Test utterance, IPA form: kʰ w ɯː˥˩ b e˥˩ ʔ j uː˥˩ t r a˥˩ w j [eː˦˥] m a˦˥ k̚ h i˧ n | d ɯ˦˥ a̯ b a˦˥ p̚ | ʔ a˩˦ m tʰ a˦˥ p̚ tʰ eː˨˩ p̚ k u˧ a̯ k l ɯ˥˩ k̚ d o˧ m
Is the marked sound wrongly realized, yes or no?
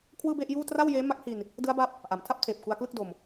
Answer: no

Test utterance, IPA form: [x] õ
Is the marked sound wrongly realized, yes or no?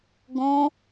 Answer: yes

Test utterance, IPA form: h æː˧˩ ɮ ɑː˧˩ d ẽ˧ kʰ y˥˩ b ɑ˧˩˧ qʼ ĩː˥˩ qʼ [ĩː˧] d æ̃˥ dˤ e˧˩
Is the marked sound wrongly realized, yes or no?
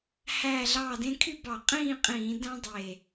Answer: yes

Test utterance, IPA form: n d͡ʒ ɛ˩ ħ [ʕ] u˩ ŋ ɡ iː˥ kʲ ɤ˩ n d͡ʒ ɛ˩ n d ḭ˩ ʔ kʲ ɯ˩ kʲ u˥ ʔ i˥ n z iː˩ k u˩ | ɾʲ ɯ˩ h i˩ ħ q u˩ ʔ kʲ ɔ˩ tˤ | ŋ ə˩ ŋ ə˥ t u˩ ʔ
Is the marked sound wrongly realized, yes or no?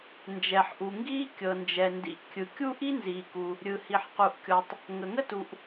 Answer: yes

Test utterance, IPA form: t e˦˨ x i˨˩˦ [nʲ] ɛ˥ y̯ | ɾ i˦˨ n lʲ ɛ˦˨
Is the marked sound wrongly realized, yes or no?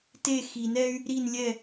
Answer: yes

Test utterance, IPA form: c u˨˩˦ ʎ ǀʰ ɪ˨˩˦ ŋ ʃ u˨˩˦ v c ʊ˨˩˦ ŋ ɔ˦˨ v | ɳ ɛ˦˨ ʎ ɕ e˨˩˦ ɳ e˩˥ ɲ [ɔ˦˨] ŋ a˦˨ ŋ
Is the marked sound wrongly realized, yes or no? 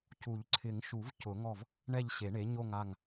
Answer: yes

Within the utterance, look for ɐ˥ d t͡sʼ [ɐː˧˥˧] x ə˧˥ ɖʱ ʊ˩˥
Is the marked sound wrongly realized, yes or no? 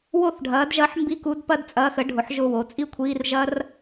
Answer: no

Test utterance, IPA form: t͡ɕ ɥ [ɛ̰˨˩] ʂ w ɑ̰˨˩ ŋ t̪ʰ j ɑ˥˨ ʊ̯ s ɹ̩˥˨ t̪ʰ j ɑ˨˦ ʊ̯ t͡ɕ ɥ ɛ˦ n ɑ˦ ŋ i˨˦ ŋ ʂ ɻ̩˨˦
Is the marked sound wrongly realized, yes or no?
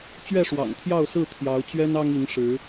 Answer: yes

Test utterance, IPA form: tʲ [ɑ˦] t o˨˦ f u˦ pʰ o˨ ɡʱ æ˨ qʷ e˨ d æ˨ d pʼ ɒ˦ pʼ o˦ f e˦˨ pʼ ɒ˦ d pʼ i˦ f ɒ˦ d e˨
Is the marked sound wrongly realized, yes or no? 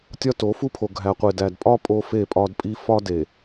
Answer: yes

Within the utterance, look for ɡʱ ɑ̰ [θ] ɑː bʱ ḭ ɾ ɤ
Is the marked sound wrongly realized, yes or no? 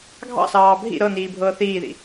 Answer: yes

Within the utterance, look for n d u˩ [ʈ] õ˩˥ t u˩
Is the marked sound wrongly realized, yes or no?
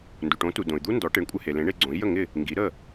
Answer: no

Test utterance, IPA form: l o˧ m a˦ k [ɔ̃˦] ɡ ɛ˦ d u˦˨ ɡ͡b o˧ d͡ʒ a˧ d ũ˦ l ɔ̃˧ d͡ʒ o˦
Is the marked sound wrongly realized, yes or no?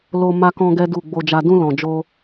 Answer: no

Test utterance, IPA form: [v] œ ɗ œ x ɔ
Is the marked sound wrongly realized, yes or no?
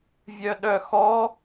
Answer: yes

